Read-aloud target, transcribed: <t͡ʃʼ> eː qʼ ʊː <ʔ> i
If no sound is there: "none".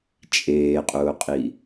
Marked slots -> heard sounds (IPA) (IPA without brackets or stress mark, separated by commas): t͡ʃʼ, qʼ